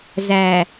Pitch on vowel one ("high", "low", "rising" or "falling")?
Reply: low